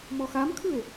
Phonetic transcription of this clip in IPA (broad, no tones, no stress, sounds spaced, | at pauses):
m ɔ x a m kʰ ɯ e̯